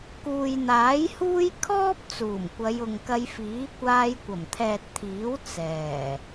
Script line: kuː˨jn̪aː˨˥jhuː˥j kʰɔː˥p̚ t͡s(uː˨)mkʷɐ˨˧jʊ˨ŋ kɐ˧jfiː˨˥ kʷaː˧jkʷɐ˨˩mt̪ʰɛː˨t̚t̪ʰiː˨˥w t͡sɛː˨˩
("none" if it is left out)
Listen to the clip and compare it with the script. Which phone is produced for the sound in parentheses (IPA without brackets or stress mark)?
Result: uː˨˩